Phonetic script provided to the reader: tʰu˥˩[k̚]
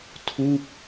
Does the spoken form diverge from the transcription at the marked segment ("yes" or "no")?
no